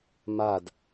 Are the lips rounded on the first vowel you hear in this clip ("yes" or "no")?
no